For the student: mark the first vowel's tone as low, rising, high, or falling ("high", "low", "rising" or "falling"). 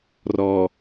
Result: low